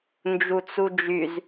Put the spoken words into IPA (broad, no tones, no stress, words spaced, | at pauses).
nd͡ʒut͡sud͡ʒyz